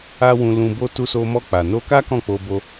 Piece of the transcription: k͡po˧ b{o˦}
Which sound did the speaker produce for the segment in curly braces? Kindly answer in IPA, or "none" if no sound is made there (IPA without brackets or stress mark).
o˦